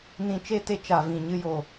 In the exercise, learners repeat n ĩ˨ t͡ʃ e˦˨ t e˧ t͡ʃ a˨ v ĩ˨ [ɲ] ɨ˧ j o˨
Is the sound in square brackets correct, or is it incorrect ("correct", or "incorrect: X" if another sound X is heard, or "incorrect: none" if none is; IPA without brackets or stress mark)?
correct